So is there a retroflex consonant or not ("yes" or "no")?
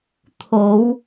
no